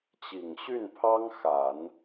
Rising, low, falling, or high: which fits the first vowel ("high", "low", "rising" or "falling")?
low